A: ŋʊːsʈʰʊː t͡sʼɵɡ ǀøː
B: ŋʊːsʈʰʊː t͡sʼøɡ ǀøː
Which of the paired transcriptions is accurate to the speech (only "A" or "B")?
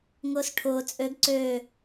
B